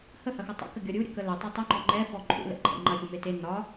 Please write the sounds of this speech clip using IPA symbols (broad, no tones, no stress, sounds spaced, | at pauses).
h ə h ɐ x ɒ tˤ ə̰ k ə ɡʲ ɒ ɾʲ u ɾʲ ə k ə l ɵ tˤ ʏ tˤ ɵ ŋ͡ǃ ɔ ŋ͡ǃ ɛ f ɔ ǃʼ ṵ l ɛ̰ ǃʼ ə̰ ŋ͡ǃ ɐ xʲ u m e t e n ɒ